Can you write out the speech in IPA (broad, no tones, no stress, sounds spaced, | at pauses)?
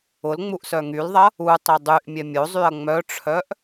ʊ l ŋ͡m u ʔ s œ ŋ y l ðˤ ɐ | u tˤ i dˤ y ʔ mʲ ɛ mʲ o zˤ y ɐ̯ ŋ͡m œ ʈ͡ʂʰ œ ʔ